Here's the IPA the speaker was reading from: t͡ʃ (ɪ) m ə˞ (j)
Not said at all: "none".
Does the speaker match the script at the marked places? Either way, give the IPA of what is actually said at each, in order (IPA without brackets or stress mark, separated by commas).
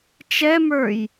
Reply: ɛ, j